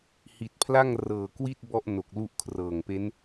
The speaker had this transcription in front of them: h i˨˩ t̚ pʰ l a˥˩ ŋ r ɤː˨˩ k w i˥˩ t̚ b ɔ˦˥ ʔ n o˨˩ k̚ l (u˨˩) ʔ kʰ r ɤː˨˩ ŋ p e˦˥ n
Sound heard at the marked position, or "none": u˦˥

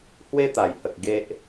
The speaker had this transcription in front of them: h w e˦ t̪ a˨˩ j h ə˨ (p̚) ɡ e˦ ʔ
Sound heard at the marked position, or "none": k̚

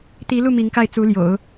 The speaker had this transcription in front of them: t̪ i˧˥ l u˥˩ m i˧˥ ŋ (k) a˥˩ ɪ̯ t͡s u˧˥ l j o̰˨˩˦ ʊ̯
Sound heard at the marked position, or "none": k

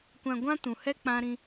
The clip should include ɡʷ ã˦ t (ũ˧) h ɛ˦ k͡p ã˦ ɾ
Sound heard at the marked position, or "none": ũ˨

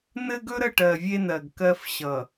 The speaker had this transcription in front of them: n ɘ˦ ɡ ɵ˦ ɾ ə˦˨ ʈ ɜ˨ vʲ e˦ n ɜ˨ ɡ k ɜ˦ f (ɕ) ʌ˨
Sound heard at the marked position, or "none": ɕ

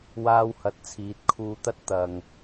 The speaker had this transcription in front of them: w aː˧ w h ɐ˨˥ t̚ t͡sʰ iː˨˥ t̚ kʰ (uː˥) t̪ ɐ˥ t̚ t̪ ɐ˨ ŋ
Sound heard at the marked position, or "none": uː˧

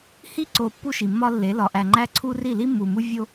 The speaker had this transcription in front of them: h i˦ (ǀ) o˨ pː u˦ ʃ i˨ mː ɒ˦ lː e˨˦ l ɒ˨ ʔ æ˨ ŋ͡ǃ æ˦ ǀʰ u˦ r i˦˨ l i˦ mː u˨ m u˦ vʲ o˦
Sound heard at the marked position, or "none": ǀ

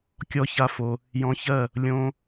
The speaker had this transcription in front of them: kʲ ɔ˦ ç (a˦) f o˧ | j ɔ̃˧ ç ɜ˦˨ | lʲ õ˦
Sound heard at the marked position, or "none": a˦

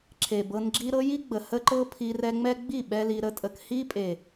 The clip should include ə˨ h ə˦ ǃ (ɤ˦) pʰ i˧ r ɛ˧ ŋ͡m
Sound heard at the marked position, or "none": ɤ˦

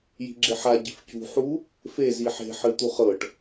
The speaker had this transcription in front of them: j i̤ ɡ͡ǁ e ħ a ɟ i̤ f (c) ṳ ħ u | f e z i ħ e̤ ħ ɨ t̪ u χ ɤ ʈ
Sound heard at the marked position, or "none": c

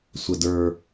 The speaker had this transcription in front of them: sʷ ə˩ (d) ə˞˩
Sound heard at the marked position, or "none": d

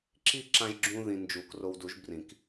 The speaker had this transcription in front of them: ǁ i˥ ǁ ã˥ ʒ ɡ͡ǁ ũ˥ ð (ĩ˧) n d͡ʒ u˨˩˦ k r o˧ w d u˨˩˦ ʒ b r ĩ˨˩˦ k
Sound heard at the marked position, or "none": ĩ˧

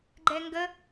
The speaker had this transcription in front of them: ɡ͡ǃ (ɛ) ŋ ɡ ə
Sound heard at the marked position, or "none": ɛ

